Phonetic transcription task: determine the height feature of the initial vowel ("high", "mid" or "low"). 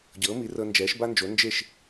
mid